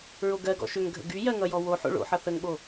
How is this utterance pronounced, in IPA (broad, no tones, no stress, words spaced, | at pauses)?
ɹoɡɜɡɔ̰ ʃʏŋɡʱə̰ ɡy jɜŋʌjɔ woħo̰ ɭo̰ħʌ θəŋɓo